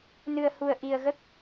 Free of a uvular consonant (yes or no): yes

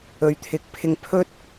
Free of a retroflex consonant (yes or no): yes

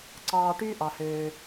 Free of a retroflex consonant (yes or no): no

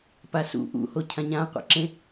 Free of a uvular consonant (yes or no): no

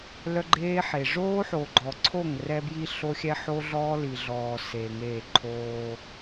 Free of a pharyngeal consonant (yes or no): no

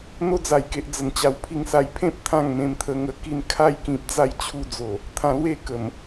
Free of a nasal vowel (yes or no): no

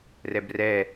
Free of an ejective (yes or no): yes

